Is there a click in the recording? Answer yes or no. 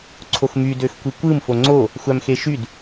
yes